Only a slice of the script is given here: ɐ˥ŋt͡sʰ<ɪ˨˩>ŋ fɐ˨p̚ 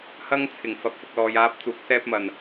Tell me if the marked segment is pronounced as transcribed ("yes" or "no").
yes